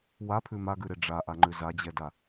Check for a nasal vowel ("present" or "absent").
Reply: absent